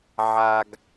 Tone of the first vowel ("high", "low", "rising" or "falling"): high